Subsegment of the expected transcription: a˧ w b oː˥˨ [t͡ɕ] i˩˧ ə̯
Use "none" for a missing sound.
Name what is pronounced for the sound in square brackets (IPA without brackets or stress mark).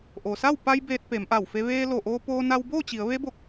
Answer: t͡ɕ